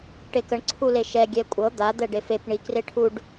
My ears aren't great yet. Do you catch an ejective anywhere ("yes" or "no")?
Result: yes